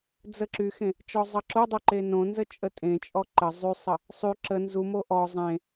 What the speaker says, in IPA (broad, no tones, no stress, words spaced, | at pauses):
d͡zəǁyxẽ | t͡ʃɔzˤʌǁodˤø ǃenõnzə t͡ʃʼətʼẽt͡ʃʼɔ ǃə zˤysˤə | sˤy ǁə nzumo ʔɔ zˤẽ